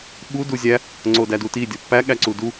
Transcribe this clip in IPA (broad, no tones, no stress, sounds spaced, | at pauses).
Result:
ɓ u d u zʲ æ | ŋ͡ǀ o d æ d u t i dʲ ɒ pː æ ɠ æ ǀ u d u